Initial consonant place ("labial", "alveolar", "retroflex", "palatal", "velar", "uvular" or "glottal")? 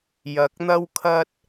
palatal